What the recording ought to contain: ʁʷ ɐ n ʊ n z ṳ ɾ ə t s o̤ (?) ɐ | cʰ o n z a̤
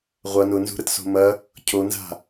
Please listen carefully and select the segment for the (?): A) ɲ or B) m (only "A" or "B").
B